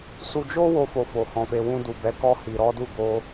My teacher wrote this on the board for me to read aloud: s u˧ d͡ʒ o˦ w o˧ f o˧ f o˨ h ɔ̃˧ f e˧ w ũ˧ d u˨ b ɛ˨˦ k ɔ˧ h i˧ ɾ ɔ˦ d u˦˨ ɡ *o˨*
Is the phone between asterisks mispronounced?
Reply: yes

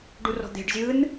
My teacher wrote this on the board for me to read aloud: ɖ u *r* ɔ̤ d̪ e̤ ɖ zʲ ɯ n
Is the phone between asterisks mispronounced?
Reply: no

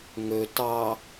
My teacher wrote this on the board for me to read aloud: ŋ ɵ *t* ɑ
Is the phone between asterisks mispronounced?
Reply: no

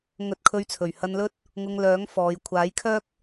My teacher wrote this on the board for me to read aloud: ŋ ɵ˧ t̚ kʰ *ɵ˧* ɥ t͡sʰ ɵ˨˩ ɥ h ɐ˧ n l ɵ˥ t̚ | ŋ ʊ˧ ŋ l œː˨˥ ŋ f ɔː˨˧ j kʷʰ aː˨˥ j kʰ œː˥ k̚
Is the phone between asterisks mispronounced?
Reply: no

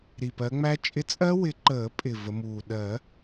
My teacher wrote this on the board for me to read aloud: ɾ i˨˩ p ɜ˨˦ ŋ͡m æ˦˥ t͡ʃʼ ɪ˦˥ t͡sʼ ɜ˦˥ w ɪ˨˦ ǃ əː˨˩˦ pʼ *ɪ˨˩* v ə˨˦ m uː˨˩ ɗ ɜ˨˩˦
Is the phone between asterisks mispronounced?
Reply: no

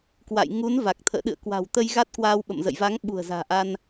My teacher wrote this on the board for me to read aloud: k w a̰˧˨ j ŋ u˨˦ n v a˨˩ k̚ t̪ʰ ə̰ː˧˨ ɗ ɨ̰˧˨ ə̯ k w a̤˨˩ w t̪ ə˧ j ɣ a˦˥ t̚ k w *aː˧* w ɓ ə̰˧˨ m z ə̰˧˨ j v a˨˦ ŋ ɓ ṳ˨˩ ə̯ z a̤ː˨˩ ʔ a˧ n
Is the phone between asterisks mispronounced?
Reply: no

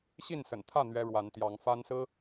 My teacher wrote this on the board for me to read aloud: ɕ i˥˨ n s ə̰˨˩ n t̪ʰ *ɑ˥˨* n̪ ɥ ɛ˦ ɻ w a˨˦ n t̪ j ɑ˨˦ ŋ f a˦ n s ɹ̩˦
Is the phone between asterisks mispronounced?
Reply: yes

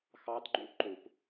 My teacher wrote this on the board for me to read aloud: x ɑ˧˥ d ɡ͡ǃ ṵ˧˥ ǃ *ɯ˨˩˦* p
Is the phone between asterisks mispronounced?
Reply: yes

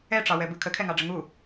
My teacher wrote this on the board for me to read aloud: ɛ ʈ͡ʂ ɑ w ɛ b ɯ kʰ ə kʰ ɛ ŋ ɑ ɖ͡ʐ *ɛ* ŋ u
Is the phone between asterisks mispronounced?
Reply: yes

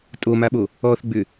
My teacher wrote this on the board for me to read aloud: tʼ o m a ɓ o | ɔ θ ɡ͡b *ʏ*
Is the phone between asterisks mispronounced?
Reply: no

